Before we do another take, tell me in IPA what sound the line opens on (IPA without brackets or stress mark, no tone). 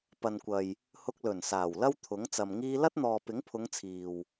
p